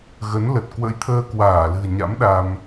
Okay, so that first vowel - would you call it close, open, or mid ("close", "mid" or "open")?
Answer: mid